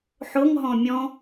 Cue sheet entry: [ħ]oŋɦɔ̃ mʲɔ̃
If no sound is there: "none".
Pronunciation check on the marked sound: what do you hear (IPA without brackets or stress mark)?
ħ